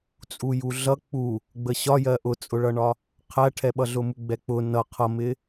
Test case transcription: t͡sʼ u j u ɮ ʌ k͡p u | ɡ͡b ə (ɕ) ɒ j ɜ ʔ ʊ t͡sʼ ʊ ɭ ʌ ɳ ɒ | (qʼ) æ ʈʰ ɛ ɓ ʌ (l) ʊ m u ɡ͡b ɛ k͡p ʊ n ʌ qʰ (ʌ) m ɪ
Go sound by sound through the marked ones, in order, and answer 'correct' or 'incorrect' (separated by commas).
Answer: correct, incorrect, incorrect, correct